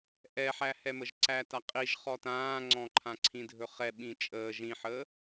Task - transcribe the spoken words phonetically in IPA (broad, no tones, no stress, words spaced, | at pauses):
ʔɛħæhɛməʒ ǀætaqʼiʒ χɔtãːŋ͡ǀɔ̃ ǃʰãǀʰĩdʱɵχɛ ɓĩt͡ʃʼəː ʒĩħəː